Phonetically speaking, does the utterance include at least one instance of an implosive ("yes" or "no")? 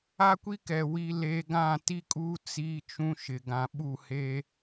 yes